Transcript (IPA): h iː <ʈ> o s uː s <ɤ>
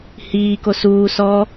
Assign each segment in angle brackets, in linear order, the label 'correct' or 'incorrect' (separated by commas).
incorrect, incorrect